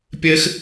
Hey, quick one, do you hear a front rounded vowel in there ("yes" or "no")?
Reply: no